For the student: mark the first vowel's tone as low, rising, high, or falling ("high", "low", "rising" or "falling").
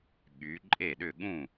rising